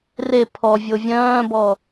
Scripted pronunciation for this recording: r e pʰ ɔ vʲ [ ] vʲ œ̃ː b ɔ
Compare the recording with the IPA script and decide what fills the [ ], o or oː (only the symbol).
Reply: o